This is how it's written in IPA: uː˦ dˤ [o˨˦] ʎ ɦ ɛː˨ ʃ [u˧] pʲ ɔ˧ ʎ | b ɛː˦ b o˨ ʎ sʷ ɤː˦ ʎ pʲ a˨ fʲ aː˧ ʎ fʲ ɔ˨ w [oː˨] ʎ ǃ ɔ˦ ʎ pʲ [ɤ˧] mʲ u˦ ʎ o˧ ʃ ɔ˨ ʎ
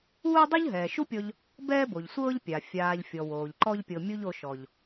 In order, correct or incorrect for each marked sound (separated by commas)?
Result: incorrect, incorrect, correct, correct